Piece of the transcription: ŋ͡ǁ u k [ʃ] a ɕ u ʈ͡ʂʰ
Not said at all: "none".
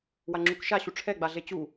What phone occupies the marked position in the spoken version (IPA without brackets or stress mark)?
ʃ